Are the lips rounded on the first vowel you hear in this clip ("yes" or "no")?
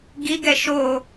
no